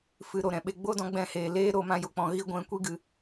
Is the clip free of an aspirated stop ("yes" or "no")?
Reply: yes